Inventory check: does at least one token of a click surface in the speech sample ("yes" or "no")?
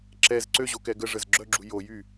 yes